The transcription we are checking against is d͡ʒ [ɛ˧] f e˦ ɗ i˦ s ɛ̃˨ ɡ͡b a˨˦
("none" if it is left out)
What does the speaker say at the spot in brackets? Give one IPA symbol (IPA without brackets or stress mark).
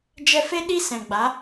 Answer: ɛ˧